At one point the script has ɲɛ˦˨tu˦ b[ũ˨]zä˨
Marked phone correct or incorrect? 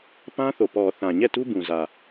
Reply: correct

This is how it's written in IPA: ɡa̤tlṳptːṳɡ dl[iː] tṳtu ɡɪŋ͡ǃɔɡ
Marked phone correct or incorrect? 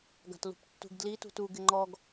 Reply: incorrect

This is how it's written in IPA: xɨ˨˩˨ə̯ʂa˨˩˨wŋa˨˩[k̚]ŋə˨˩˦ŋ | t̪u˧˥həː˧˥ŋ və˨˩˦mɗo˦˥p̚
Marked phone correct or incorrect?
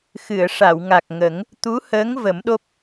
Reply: correct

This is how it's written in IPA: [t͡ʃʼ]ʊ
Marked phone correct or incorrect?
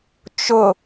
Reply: incorrect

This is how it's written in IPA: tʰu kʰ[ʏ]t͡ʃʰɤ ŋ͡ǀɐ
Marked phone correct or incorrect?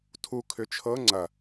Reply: correct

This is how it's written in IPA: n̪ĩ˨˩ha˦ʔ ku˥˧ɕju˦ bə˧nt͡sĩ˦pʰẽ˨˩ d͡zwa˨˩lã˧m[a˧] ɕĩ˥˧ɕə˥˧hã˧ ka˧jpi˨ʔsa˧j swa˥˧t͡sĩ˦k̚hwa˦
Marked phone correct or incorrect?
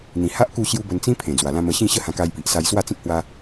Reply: incorrect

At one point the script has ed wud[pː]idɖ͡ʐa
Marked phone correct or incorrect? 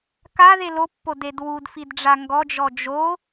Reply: incorrect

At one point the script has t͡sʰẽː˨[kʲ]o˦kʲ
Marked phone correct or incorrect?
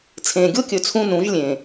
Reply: incorrect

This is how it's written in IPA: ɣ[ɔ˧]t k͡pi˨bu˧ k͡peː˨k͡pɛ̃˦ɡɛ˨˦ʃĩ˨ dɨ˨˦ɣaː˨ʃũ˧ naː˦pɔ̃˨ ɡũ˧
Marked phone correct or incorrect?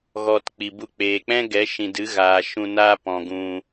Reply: correct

